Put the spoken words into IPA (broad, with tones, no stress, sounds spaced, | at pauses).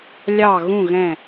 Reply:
lʲ ɑ˧˩ ɣ ũ˧˩ ɣ ɛ̃˧˩